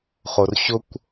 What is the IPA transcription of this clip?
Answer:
χorɕʊkʷ

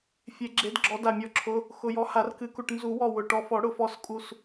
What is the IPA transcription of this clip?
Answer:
fʲe˨˩˦ɡ͡ǁe˨˥d ɡ͡ǁɔ˨˥da˧˩mʲɔ˧˩ǁʰʊ˨˥ | xʊ˧˩jɔ˨˥ ha˨˩˦rkɨ˨˩˦ku˧˩ʈ nzu˨˩˦wɔ˧˩ wʊ˧˩ ʈɔ˧˩fɔ˨˩˦ɽʊ˨˩˦fɔ˧˩s kʼu˧˩s

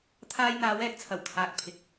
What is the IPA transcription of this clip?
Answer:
t̪ʰaː˧j n̪aː˨˧wɛː˨k̚t͡sʰɐ˨˩w t̪ʰaː˨k̚pʰɪ˨k̚

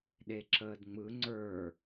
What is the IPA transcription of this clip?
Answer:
ɗeǁəːdŋ͡mɯ ŋ͡ǀə˞

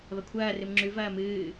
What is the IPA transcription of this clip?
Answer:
βɐkʷʰɐː rɨmŋ͡ǁʉ vɐːmɨː

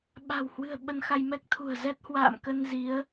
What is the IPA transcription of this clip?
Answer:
ɓa̤˨˩whwɨ̤˨˩ə̯ ɓə˧nxa˧jmɛ˦˥k̚ t̪ʰṳ˨˩ə̯zɛ˦˥t̚ hwa̰ː˧˨mkə˧n zi˨˦ə̯

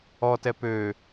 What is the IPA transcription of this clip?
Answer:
ɔtɛ pø

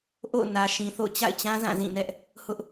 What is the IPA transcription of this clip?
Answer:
ʔo̰˦˨ʊ̯ nä˨ʃĩ˨θo̰˦˨ʊ̯ t͡ɕa̰˦˨ɪ̯t͡ɕã˦ zã˦˨zĩ˦˨nɛ˦ʔ | hʊ˦ʔ

